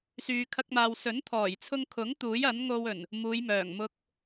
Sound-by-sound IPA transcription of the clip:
s yː˧ kʰ ɐ˥ k̚ m aː˧ w s ɵ˨˥ n t̪ʰ ɔː˨˩ j t͡sʰ ʊ˧ ŋ kʰ ʊ˨˥ ŋ t̪ uː˨˥ j ɐ˨˥ n ŋ o˧ w ɵ˨˩ n | m uː˨˧ j m œː˨˩ ŋ m ʊ˧ k̚

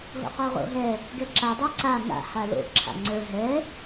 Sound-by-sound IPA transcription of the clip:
ɦ o̰ q o ʁ o̰ ɦ ɛ | ɡ ɛ ǁ a dˤ a ǀ a ŋ a̰ h a l o̰ ǁʰ a̰ ŋ͡ǀ ə˞ ɦ ɛ

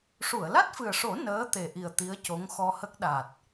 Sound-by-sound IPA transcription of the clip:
ʂ u˨˩˨ ə̯ l a˦˥ t̚ f ɨ˨˩ ə̯ ʂ o˨˩˦ n əː˧˥ t̪ e˨˩ ʔ i˨˩ ə̯ t̪ i˧˥ ə̯ c o˧˥ ŋ x ɔ˧ h ə˦˥ k̚ ɗ a˨˩ t̚

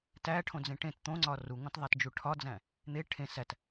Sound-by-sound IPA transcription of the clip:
t æ ʈʰ õ d͡z ẽ ʈ ẽ t t̪ õ ŋ͡ǀ ɒ r u ŋ õ t ðˤ æ t d͡ʒ u ʈʰ ɒ d͡z æ̃ | n̪ e ʈʰ ẽ s æ t

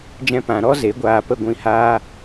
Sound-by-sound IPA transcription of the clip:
d͡ʒ ɛ̃˦ p ã˨˦ ɾ ɔ˦ z e˨˦ ɡʷ aː˧ p ə˦˨ ɡʷ ĩ˦ h aː˦

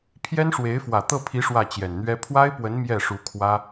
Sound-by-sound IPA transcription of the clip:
pʰ j ɛ˥ n ʂ w e˧˥ ɪ̯ f w ä˨˩ t̪ ɤ˥˩ pʰ i˧˥ ʂ w ä˥˩ t͡ɕ j ɛ˨˩ n n̪ ɥ ɛ˥ pʰ w a˥ ɪ̯ p w ə˧˥ n m j ɛ˥˩ ʂ u˧˥ kʰ w ä˥

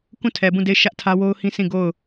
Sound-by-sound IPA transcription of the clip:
k ũ˦˨ tʰ ɛ˨ b ũ˦˨ d e˦˨ ɪ̯ ʃ ä˦ ʔ tʰ ä˦ w o˦ ʊ̯ h ĩ˦ sʰ ĩ˦˨ ɡ o˦˨ ʊ̯

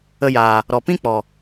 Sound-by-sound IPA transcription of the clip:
ə˧ j aː˨ | ɾ ɔ˨ p ĩ˦ k͡p ɔ˨

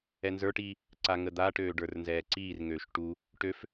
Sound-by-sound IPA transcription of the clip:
ɛ n z ə˞ ʈ iː | ǀ a ŋ ə d̪ a ʈ øː ɖ ə˞ r n z ɛː ǀ iː r ŋ øː ʃ ʈ u | ʈ ø f

